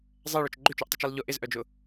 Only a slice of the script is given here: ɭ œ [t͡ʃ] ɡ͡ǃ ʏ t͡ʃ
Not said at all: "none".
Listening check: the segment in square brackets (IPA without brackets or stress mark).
t͡ʃ